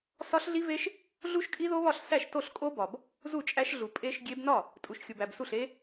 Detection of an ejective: present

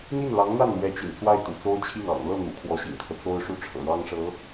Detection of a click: absent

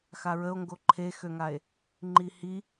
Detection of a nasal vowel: absent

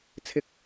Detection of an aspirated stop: present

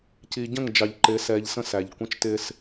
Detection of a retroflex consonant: absent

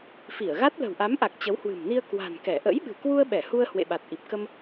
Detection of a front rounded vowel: absent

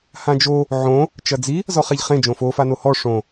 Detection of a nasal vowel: present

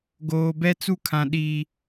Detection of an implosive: present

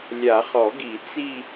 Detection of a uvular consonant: present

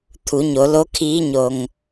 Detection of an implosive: absent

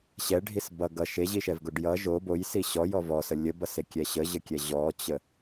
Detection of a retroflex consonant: present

